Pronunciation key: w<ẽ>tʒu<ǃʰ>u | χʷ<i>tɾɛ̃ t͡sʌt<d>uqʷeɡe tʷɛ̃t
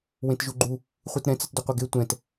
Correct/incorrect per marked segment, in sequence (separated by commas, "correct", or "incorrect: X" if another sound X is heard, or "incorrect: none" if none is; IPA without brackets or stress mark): correct, incorrect: ɡ͡ǃ, correct, correct